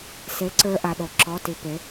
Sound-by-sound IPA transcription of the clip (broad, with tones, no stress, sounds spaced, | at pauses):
s e˨˥ ǀ ə˞˧ ʔ a˧ ɗ o˧˩ ǁ ɔ˧˥˧ t i˧ p e˨˥